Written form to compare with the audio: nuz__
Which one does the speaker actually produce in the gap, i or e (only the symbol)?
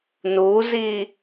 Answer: i